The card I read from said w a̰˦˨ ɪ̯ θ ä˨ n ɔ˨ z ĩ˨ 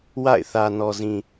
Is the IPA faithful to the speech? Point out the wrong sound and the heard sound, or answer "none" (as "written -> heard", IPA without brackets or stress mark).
none